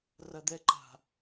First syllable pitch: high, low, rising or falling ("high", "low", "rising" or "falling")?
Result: high